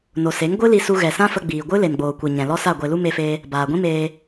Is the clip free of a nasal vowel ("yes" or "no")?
no